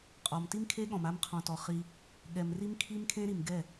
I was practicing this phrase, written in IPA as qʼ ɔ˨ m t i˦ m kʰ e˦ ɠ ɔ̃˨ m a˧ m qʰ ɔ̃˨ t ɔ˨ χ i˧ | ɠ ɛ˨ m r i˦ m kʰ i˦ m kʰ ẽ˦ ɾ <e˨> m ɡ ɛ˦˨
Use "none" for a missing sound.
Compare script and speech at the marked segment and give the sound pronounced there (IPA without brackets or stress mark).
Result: i˨